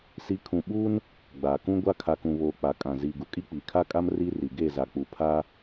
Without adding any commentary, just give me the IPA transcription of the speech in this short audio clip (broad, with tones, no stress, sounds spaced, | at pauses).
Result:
s i˨˦ kʰ ũ˨ ɓ uː˦ n | ɡ͡b aː˨ k ũ˦ ɡʷ a˦ kʰ a˨ k ũ˨ β oː˨ k͡p a˨ kʼ ã˨ z iː˨ ɡ u˨ kʼ i˦ k͡p iː˨ kʰ a˦ kʼ a˦ m r i˦ r i˨ ɡ e˦˨ z a˨ k͡p u˨ pʰ a˦